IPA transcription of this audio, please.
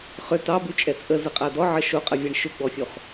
χ ʏ t ɑ b ʉ t͡ʃʼ ɛ t͡sʼ ə z ə qʼ a d ɔ ʕ ə ʃ o qʼ ə vʲ a ɳ ʃ ʏ ɡ͡b ɔ fʲ o χ

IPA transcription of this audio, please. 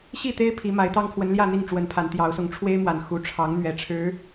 ɕ i˥˨ t̪ e˦ ɪ̯ pʰ i˨˦ m a˨˦ ɪ̯ t̪ ɑ˦ ŋ pʰ w ə˨˦ n l j ä˥˨ n̪ i˥˨ ŋ ʈ͡ʂ w ə˨˦ n pʰ a˨˦ n t̪ j ɑ˨˦ ʊ̯ s ʊ˨˦ ŋ ʈ͡ʂʰ w e˦ ɪ̯ m w a˨˩ n x u˨˦ ʈ͡ʂʰ ɑ˨˦ ŋ n̪ ɥ ɛ˨˩ ʈ͡ʂʰ ɻ̩˨˦

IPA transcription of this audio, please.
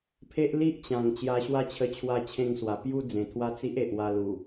pʰ e˦ ʔ l i˦ ʔ t͡ɕ ã˨˩ ŋ t͡ɕ j a˧ ɕ w a˦ t͡ɕʰ ə˧ t͡ɕʰ w a˥˧ t͡ɕʰ ẽ˥˧ ŋ s w a˨˩ p j u˦ d͡z ẽ˨˩ t̪ʰ w a˦ t͡s i˦ ʔ e˨ ʔ w a˧ l u˨˩

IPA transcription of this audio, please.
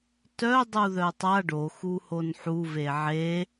t œ dˤ u ð œ tˤ a ɖ o x u h o n ħ u v e ʕ e

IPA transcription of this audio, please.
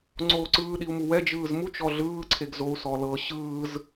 ŋ͡ǀ oː ǀ ɯː ɗ i u̯ m u w ɛ d͡ʒ ɯː z m u t͡ʃ ɔ ɮ ɯː ǀʰ e ɡ z o u̯ s ɔ l ɤ ɕ ɯː z

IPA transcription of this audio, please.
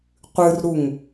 qʷ ɨ r ɾ u ŋ

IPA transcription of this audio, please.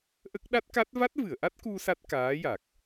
ʔ ə˦˥ k̚ ɗ a˦˥ t̚ k a˦˥ t̚ v a˦˥ t̚ v ɨ˨˩˨ ə̯ ʔ a˦˥ t̚ k u˧ s a˦˥ t̚ k aː˧˥ j a˨˩ k̚

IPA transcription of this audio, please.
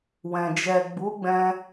w ɛ̃˨ d͡ʒ ɛ˨ ɡ͡b u˨˦ ɡ͡b ɛ̃˦

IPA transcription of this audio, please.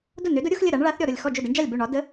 d ʊ˥˩ n ø˨˥ d ʊ˨˥ ɾʲ ʊ˨˥ x lʲ ə˥˩ ɾ a˨˥ ɳ ɭ a˨˥ θ ɾʲ ɔ˥˩ ɾ ʊ˥˩ lʲ x ɔ˥˩ d͡ʒ ʊ˥˩ d ɘ˨˥ ɳ d͡ʒ a˥˩ lʲ b ø˥˩ ɳ ɒ˨˥ d ə˨˥

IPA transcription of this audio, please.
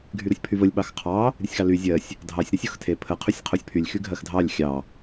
ɡʱ y ɾ o sʲ pʰ y v ə lʲ ɓ ɑ x qʰ ɑ | ɾʲ ə sʲ x ɑ l y zʲ ɜ sʲ | dʱ ɑ sʲ ɾ e sʲ o x tʰ e pʰ ə qʰ y sʲ qʰ o sʲ pʰ y lʲ x y ɡʱ ɜ x dʱ ɑ lʲ xʲ ɑ

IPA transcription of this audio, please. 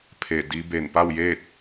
pʰ e˧˩ d i˧˥ b e˧˩ n p a˥˨ w j eː˥˨ t̚

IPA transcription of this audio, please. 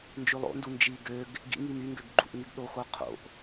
n d͡ʒ ʉ lˠ o̰ n d u n d͡ʒ i ɡ ø ɡ | ɡ ḭ ŋ i m y ŋ ɡ ø ɡ ɡ͡ǃ ṵ ʔ ŋ y ɡ ɗ o x o qʰ o̰ ʔ

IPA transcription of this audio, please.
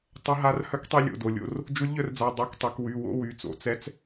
tˤ ə˧˥ ɦ a˧˥ r h œ˧˥ k tˤ i˧ lʲ o̰˩˧˩ d o˩˧˩ lʲ o̰˧˥˧ r | d͡ʒ u˧˥ lʲ ʎ œ˧ r d͡z a˩˧˩ dˤ ø˧˥˧ k tˤ y˩˧ k w y˩˧˩ w o̰˧˥˧ w y˩˧˩ t͡s o̰˩˧ t͡s ɛ˧˥ t͡s

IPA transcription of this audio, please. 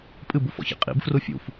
pʼ ɨ b u f ɔ̰ ç ḭ qʼ ḭ b f r u fʲ ṵ f

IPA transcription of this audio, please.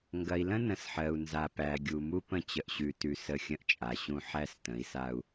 ŋ ɡ ɐ˨ i̯ l ə̃˦ n ə̃˨ s ħ ɜ˨ u̯ n z a˨ p æ˨ ɡʲ u˨ m u˦ p ə̃˦ t͡ɕ ə˨ ʔ ɕ ʉ˨ t ʉ˨ s ə˦˨ xʲ ə̃˦ ʔ t͡ʃʼ a˨ ɕ ũ˦ ħ æ˦ s t ə̃˨˦ i̯ s a˦ u̯

